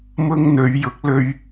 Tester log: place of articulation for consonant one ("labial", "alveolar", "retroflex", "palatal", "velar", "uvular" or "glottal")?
labial